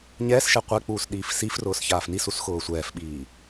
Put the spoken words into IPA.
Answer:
ɲ ɛː s ʃ ɛ qʷ ɛ k͡p uː s ɗ iː f s i f r ʊː s ç aː f n i s u s x ʊː sʷ ɛː f ɓ iː

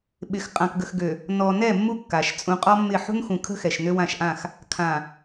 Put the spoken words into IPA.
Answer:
ɓ ɪ˨ x qʼ ã˨ k ɡ ə˨ x ɡ ø˨ | n ɔ˨ n ɛ˦˨ mː u˦ kː a˨ ʃ t͡sʼ ũ˦ qʼ ɔ˦ mː ɪ˦˨ ħ ṳ˦ n x ũ˨ kʰ ə̤˦ x ɛ˨ ʃ n ø˦ w ã˦˨ ʃ ʔ ã˦˨ x | kʰ ã˨

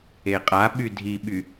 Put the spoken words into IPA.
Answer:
e qʼ a ɓ y dʱ i ɓ y

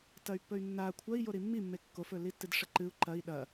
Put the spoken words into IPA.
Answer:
t ɐ y̯ pː ɵ y̯ nː a kʷʰ ɐ i̯ j o ɾ i mː i mː e kː o f ɵ l i tː ɨ d ʂ ɐ ǃ ɨ u̯ ǃ ɐ i̯ ɗ ɐ

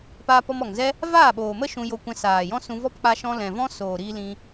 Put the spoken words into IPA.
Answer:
p aː˧ p ɔ˧ m ɔ˨ ŋ z ɛ˦ | v aː˦˨ ɓ oː˨ m ə˦ ʃ ũ˧ j o˧ kʷ ɛ̃˧ s aː˨ j ɔ̃˦ s ũ˧ v ɔ˦ p k͡p a˦ ʃ ɔ̃˦ l ɛ̃˨ v ɔ̃˦ s oː˨ ɾ iː˧ l ĩ˧

